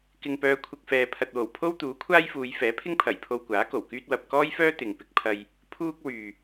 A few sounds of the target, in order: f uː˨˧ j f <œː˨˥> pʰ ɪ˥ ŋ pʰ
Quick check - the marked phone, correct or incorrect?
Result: incorrect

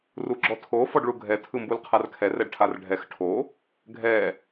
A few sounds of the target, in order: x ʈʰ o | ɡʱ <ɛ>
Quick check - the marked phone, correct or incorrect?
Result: correct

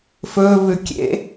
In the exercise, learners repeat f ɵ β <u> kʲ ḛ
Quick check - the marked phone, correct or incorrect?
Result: incorrect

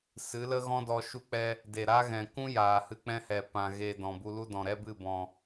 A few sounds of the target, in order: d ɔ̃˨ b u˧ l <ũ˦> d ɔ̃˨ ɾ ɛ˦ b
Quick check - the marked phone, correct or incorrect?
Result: incorrect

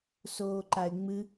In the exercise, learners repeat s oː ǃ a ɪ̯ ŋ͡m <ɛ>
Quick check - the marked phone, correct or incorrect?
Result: incorrect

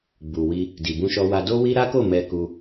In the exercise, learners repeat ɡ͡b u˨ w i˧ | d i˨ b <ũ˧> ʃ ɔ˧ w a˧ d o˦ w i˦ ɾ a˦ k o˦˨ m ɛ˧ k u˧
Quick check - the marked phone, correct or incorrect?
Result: correct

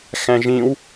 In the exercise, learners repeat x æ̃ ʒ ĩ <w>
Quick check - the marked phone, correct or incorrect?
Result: correct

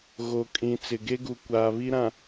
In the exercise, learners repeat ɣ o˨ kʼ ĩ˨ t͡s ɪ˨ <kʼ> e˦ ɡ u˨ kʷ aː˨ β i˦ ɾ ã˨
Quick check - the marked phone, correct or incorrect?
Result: incorrect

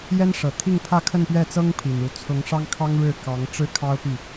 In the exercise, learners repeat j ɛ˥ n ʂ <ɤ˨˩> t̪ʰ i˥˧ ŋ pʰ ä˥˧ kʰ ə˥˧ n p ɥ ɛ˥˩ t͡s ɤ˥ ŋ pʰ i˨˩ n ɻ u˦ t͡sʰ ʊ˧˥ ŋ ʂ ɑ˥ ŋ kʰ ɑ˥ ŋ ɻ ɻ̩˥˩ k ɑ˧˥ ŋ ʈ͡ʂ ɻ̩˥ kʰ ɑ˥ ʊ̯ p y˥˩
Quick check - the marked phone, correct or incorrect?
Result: correct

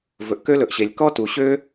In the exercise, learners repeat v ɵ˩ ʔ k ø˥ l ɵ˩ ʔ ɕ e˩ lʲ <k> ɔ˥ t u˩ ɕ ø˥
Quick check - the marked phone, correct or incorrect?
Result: correct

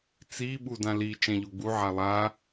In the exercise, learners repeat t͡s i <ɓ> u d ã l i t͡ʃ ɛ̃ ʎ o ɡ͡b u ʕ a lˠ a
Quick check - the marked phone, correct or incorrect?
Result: correct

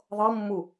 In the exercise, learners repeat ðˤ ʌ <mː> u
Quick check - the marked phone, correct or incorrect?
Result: correct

